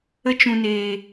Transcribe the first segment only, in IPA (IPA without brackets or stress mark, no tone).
ə